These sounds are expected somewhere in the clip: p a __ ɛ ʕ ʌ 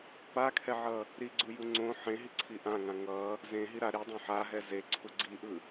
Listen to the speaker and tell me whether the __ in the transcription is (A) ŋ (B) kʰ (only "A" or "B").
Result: B